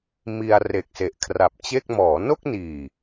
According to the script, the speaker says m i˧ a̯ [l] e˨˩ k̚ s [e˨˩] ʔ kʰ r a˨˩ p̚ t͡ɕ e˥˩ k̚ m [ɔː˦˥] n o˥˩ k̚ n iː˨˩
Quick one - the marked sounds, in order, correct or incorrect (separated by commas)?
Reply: incorrect, correct, incorrect